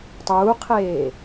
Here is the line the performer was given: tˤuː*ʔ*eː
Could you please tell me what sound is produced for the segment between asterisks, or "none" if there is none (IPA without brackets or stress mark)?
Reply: qʰ